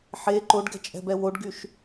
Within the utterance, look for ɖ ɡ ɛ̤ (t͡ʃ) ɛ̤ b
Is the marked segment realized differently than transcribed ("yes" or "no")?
yes